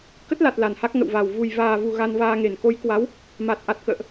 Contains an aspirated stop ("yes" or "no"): no